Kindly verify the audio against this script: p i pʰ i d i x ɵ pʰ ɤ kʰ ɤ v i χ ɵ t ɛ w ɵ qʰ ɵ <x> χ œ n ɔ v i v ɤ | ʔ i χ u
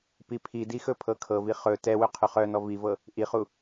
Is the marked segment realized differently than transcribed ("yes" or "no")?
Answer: yes